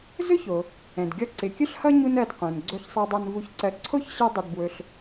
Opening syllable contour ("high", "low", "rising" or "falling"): high